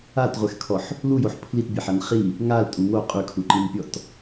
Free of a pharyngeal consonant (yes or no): no